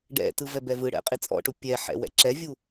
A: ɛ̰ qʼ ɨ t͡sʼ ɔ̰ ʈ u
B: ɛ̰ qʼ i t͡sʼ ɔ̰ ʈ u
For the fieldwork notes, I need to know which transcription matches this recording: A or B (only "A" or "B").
B